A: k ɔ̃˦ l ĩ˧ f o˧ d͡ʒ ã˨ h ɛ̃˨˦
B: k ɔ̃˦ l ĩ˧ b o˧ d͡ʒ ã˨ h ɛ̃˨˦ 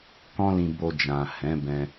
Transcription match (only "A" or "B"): B